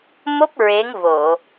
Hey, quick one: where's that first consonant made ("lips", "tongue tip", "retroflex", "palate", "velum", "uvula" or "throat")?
lips